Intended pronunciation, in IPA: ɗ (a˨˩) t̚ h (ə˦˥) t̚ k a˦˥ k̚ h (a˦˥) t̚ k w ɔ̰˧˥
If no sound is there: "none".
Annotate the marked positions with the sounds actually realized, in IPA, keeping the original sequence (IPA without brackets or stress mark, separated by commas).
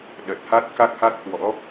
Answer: ə˨˩, a˦˥, a˦˥